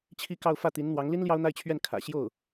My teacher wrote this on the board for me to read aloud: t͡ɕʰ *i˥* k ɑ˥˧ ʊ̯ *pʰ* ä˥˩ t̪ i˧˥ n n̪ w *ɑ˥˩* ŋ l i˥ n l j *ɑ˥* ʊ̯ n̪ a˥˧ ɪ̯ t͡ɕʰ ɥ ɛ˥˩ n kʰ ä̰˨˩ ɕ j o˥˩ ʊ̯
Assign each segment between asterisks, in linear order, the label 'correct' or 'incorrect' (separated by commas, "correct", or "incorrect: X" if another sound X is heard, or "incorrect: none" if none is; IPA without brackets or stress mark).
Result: correct, incorrect: f, incorrect: ɑ˧˥, correct